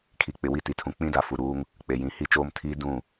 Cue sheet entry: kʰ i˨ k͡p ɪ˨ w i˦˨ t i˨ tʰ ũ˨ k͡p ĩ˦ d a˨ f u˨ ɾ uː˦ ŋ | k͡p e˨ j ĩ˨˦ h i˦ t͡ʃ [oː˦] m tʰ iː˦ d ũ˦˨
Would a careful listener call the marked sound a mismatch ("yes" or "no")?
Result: no